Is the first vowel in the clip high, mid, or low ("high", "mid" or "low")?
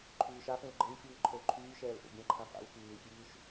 high